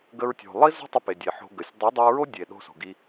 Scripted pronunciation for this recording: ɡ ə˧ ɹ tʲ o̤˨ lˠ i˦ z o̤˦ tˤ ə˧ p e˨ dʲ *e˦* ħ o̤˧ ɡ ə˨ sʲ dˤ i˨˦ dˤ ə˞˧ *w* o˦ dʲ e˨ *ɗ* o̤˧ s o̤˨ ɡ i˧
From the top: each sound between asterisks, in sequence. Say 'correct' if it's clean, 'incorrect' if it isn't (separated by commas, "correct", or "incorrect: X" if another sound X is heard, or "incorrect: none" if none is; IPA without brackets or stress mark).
incorrect: e˨, incorrect: ɹ, correct